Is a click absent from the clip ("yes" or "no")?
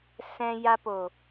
yes